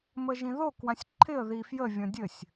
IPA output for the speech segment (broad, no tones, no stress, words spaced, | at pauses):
məʒĩðo kwãsʲǃʰɪə̯ ðifjə vʲɔ̃dʲɘsʲ